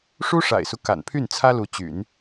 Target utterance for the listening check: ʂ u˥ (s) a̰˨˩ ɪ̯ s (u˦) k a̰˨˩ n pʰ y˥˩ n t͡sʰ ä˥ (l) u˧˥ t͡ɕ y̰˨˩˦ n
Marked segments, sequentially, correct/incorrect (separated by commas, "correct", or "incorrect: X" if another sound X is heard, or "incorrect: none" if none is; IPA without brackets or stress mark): incorrect: ʂ, correct, correct